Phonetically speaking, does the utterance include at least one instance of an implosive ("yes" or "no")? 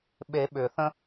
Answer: yes